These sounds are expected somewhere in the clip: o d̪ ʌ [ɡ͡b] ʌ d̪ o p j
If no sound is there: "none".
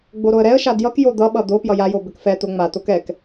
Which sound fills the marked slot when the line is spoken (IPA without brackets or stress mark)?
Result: ɓ